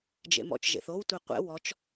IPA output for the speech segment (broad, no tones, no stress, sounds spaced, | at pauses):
d͡ʒ ḛ m ɔ̰ t͡ʃ ʒ ḛ θ o w tʷ e qʷ ɛ̰ w ɔ t͡ʃ